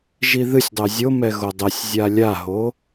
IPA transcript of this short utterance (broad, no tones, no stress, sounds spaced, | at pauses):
ʒ i ð ɨ sʲ dˤ ɛ zʲ o m ɛ ɣ o dˤ ɛ sʲ zʲ a lʲ a ɦ o